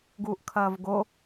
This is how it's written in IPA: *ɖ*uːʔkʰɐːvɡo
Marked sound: incorrect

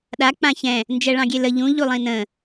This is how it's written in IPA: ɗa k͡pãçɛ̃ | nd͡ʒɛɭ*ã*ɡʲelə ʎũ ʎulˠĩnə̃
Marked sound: incorrect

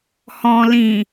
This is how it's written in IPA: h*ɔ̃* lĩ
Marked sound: correct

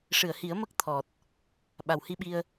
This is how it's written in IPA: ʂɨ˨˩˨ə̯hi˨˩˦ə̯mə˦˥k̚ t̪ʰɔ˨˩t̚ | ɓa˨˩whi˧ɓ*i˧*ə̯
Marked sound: correct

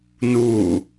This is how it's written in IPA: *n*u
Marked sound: correct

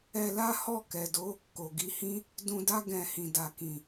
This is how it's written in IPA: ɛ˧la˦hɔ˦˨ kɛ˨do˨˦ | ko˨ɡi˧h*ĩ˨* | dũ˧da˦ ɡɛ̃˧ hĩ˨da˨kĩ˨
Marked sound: incorrect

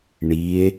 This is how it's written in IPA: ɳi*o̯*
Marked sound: incorrect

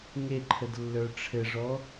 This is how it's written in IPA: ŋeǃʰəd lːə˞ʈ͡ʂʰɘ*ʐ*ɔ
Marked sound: correct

